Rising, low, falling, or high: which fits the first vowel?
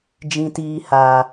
high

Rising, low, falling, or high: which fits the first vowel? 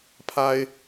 high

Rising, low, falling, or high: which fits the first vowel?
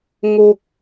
high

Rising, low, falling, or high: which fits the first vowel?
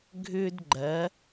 high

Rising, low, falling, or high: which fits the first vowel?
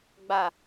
low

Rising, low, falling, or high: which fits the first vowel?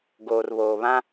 low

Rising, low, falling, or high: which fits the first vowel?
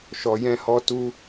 low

